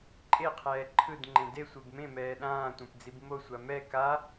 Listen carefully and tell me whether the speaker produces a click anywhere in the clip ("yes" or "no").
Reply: yes